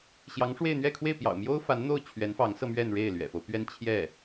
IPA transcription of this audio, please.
ɕ j ɑ˧˥ ŋ ʂ w e˥˧ ɪ̯ n̪ ɥ ɛ˥˧ kʰ w e˥˩ ɪ̯ p j ɑ̰˨˩ ʊ̯ m j o˥ ʊ̯ f a˧˥ n n̪ o˥˩ ʊ̯ t͡ɕʰ ɥ ɛ˧˥ n f ɑ˧˥ ŋ s ɤ˧ m ɥ ɛ˥˧ n ɻ e˥˩ ɪ̯ l ɥ ɛ̰˨˩ f o˦ ʊ̯ p ɥ ɛ˥˧ n t͡ɕʰ j ɛ˥˩

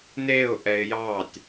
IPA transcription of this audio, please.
n e ʊ̯ ʔ ɛ ɪ̯ j ɑ tʲ

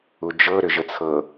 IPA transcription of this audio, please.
u d͡ʒ ɤ ɾ ʏ ʒ ə t͡sʰ ɤ

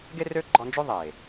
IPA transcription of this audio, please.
ɡ e˦ r ø˦ ɡ͡ǃ ɔ˧ n d͡ʒ o˦ ðˤ e˨

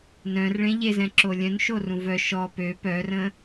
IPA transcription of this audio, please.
n œ̃ r ɭ ẽ ʎ e z ɛ̃ ǁ o lʲ œ̃ n ʃ o r ũ v œ ʃ ɔ p ø p œ r ə̃ː

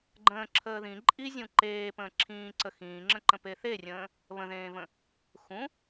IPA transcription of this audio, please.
ɡ͡ǃ ə̃ː ǁʰ əː ð ĩ ǃʼ i zʲ ũ ǃ eː p ə̃ː ǁʰ ĩː ǀ ə x ĩː ŋ͡ǁ ə̃ ǃ ə̃ p e θ e rʲ ə̃ː | β ə̃ ð ẽː v ə̃ | x ũ

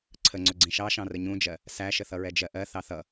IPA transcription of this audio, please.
ǀʰ ə ŋ͡ǀ ʊ ɡ͡ǀ ĩ ʃ ɑ ʃ ɑ̃ r ə ɲ ũ d͡ʒ ɜ | s æ ʃ ə θ ʌ ɹ ɛ d͡ʒ ɜ ʔ ɜ θ ɑ θ ʌ

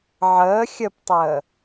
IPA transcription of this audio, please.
ʕ əː xʲ ə p tˤ əː

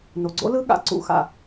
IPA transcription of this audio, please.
n o˨ ɡ͡ǀ o̰˦˥ l ɯ˦˥ ɠ a̰˨˦ ǀ ṵ˨˦ x a̰˨

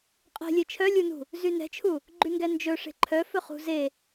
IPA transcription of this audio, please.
qʼ e̤ lʲ e t͡ʃʰ œ lʲ u n ṳ | z y n ɛ̤ t͡ʃʰ u | ɡ͡ǃ y ŋ ɡ ɛ n d͡ʒ ɵ ʂ e̤ ǃʰ œ f ɵ χ ṳ z e

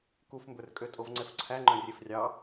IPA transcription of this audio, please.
k u f m b ɵ r kʼ ø tʼ o v ŋ͡ǀ ɛ f ǀʰ æ ŋ͡ǃ œ̃ rʲ e f rʲ ɑ

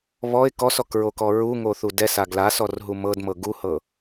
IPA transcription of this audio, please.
β ɔ ɪ̯ k ɔ s ɔ k ɹ o k ɔ ɹ u ŋ o θ u d ɛ s a ɡ l a s ɔ r ɦ u m ɤ d m ɤ ɡ u h ɤ

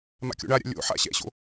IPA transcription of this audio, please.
m a̰ kʲ o̰ ɳ a ɾʲ a̰ lʲ o̰ ħ a̰ ɕ ɛ̰ ɕ o̰

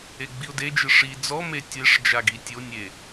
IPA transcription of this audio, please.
e ɡ͡b i ʊ̯ d e d͡ʒ ɨ ʂ i d͡z ɔ m e tʲ e ʂ d͡ʒ a ɡ i tʲ o nʲ e

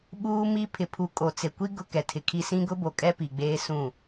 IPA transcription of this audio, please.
ɓ uː˦ m i˦ pʰ ɪ˨ pʰ u˨ kʼ o˨ t͡s e˨ kʷ i˦ ɡ ʊ˦ k ɛ˨ tʰ ɪ˨ kʰ i˦ s ĩ˦ ɡ ʊ˦ b o˨ kʼ ɛ˦ p i˨ ɡ͡b eː˦ s ũ˦˨

